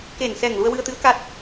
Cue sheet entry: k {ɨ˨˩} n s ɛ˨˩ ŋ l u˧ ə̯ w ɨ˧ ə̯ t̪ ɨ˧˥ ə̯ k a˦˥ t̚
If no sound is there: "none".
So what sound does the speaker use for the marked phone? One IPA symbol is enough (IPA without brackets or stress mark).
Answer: e˨˩